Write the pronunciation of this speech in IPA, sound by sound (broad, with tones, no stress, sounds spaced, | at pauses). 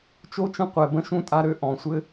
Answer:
t͡ʃ o˥ t͡ʃ ə̃˥ qʷ ɛ˨ b ə̃˥ ʃ ũ˥ tʼ a˦ ɾ ø˦ ʔ ɔ̃˩ sʷ ɘ˦